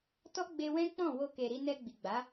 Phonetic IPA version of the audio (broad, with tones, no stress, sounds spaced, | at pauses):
t ɔ˦ ɡ͡b e˧ w ɛ̃˦ k͡p ɔ̃˦˨ w o˧ k e˨ ɾ i˧ n ɛ˧ ɡ͡b i˨ ɡ͡b a˨˦